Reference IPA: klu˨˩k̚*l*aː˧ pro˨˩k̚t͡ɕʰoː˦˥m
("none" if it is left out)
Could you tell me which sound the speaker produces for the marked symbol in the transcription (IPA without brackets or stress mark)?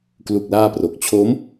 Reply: l